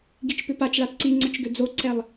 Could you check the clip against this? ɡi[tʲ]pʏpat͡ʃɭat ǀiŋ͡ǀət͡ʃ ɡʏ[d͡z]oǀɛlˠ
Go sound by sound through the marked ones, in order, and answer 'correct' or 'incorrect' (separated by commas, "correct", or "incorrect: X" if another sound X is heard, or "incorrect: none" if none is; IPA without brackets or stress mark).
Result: incorrect: t͡ʃ, correct